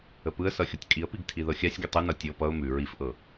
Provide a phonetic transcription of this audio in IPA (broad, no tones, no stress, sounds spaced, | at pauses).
ə p ɯ ə̯ s ʌ xʲ ɤ tʲ kʼ i ə̯ p i ɡ tʰ i ð ɤ xʲ a sʲ ɡʲ ə tˤ ɯ n ʌ tʲ ɤ p ʌ ʊ̯ m ʉ ɹ i f ʔ ɤ